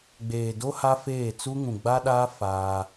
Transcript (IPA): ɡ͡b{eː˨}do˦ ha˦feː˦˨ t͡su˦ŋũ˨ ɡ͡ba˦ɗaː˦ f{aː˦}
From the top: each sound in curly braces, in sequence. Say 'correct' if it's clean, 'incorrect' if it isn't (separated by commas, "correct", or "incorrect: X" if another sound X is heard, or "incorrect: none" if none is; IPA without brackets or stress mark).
correct, correct